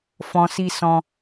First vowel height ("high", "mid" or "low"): mid